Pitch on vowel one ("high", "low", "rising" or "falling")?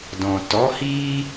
low